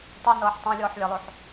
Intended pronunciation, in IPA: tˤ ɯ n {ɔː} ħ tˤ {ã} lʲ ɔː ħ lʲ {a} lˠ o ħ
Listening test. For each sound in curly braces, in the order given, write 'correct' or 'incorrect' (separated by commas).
incorrect, correct, correct